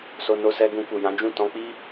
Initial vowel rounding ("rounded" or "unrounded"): rounded